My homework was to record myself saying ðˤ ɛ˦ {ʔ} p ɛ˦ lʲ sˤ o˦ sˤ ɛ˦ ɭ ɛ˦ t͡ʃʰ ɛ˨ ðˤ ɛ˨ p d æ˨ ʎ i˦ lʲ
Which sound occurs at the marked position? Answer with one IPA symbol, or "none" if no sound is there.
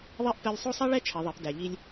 ʔ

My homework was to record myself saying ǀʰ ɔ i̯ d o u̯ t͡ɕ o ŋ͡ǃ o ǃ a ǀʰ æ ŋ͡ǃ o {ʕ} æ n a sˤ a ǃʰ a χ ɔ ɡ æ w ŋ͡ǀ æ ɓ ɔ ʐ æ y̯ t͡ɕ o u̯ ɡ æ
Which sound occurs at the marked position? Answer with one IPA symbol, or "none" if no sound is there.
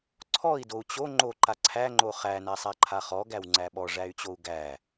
χ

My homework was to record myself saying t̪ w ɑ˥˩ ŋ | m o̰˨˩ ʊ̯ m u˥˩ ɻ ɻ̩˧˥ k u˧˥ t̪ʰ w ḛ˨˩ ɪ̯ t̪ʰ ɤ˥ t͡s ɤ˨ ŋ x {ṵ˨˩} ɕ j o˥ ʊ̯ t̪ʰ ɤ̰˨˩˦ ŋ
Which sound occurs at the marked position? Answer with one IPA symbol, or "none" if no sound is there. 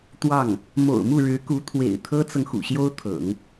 ṵ˨˩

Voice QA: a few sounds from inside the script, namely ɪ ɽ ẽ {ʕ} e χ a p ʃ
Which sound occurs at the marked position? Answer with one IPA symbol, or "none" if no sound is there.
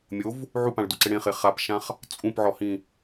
χ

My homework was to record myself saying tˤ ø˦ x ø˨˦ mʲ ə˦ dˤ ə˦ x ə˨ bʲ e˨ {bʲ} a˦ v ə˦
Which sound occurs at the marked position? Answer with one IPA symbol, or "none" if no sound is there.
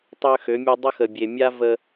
mʲ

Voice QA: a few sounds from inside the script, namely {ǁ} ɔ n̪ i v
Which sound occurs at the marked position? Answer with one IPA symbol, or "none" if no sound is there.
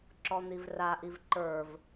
ǁ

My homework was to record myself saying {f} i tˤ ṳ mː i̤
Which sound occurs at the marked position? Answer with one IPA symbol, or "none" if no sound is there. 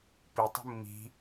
p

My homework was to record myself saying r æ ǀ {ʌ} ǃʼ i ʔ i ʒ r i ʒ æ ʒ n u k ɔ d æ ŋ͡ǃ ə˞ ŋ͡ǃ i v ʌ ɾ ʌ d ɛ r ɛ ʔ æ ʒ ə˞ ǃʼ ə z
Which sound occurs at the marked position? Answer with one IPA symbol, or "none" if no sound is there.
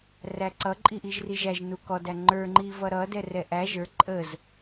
ʌ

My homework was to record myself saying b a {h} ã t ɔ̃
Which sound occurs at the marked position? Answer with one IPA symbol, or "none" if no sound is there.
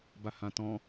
h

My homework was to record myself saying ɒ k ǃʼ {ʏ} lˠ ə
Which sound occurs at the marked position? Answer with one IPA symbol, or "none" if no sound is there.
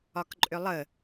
ʏ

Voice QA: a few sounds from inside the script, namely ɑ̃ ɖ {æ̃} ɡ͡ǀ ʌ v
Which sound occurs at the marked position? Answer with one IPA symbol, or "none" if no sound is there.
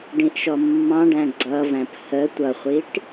æ̃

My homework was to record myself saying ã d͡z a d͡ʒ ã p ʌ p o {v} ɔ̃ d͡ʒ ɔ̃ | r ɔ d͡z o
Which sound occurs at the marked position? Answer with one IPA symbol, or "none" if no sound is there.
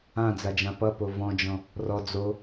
v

